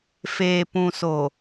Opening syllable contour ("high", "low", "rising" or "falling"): low